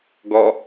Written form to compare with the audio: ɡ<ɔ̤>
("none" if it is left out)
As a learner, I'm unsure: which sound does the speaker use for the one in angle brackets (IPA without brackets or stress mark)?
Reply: ɔ